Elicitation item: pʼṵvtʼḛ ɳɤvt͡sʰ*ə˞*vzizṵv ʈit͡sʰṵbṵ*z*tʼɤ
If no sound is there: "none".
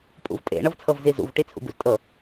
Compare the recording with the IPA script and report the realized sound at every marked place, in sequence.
ɤ, z

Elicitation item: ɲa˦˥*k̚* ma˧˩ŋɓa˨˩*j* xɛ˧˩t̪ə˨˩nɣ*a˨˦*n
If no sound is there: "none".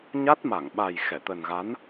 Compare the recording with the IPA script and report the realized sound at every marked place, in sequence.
t̚, j, a˨˦

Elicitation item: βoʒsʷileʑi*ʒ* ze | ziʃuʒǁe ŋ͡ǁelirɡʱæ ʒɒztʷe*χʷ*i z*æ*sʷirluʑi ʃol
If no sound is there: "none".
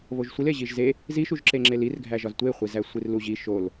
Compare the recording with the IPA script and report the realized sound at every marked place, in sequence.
ʒ, χʷ, æ

